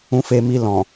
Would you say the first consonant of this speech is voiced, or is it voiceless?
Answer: voiceless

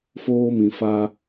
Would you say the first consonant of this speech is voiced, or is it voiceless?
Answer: voiceless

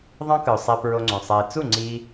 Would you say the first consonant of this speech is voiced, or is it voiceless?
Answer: voiced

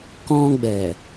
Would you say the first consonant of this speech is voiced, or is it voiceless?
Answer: voiceless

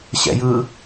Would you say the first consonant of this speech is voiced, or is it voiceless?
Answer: voiceless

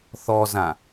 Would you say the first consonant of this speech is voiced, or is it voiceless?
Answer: voiceless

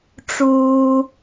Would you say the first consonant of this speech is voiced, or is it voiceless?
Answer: voiceless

